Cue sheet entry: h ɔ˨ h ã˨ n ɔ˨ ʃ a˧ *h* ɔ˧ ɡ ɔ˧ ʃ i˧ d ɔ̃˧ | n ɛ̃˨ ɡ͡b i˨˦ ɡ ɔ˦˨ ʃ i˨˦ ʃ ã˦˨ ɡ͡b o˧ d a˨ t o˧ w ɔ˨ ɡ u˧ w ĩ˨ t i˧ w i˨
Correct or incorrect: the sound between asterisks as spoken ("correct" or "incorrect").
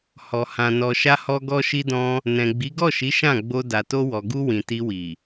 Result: correct